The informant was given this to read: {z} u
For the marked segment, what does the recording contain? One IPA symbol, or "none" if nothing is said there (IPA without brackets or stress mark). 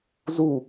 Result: z